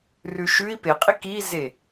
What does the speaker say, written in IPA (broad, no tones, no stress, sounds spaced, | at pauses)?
r ʉ ʃ ʉ i̯ p e qʼ i k i z e